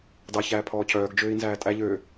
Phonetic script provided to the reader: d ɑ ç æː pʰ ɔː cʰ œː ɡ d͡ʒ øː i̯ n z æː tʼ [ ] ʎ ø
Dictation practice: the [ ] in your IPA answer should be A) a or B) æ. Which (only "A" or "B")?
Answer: B